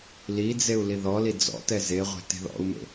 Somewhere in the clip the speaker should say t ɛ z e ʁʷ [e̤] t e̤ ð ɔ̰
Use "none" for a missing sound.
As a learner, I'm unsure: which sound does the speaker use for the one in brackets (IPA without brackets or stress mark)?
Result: e̤